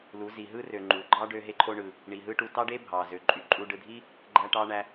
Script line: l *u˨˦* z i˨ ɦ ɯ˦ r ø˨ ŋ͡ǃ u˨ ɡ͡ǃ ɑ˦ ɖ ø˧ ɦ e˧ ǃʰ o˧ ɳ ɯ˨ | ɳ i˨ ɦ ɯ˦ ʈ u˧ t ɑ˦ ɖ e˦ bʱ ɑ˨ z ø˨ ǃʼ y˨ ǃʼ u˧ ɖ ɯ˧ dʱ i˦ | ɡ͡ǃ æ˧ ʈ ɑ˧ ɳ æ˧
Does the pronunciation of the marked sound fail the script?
no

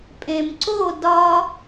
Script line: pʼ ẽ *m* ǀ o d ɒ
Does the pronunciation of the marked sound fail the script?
no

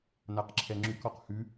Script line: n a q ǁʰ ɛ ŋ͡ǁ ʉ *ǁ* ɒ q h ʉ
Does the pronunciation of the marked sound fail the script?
yes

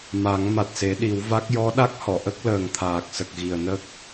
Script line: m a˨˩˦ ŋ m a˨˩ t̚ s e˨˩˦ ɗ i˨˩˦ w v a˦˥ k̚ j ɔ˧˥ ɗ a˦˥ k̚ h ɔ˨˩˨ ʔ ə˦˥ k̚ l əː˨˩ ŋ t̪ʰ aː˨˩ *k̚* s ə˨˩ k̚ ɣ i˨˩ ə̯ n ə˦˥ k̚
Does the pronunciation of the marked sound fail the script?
no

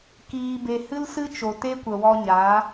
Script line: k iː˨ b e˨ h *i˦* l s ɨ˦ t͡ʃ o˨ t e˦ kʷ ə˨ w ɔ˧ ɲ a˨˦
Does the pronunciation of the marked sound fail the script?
yes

